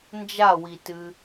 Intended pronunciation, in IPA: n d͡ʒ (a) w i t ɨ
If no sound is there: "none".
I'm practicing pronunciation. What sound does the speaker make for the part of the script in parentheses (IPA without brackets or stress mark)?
a